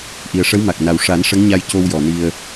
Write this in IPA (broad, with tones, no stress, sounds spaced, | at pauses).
ʔ i˨˩ ə̯ ʂ ə˧˥ w m a˨˩ k̚ n a˨˩ w ʂ a˨˩˦ n ʂ ə˧˥ ŋ ɲ a˧ j c o˧ w j ɔ˨˩ n i˧ ə̯